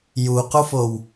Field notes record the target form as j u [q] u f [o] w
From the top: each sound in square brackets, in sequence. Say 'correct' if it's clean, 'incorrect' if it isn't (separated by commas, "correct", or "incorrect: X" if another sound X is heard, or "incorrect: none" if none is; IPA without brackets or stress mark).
correct, correct